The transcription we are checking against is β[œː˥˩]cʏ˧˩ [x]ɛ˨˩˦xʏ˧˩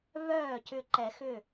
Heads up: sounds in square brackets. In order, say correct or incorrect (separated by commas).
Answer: correct, incorrect